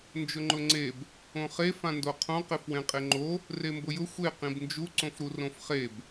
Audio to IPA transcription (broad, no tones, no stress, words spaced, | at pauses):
nd͡ʒʊŋ͡ǃʊŋ͡ǀeb | õχe fãndoqʰõ qefwẽqʼeŋ͡ǃo | rembʊjʊ xʷe qĩbnd͡ʒu ǀõfɾurõfχeb